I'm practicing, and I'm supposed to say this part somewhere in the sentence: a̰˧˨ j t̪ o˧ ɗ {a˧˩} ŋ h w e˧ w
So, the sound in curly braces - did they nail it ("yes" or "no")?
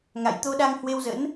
no